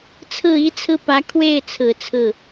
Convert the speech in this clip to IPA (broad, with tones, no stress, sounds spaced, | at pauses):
t͡sʰ ɹ̩˥˩ i˥ t͡sʰ ɹ̩˥˩ p ä˧˥ kʰ w e˥˩ ɪ̯ t͡sʰ ɹ̩˨˩ t͡sʰ ɹ̩˥˩